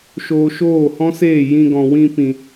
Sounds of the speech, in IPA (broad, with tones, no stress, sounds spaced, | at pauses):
ʃ oː˧ ʃ oː˦˨ h ɔ̃˦ s eː˦˨ j ĩ˧ ɡ ɔ̃˨ w ĩ˧ p ĩ˨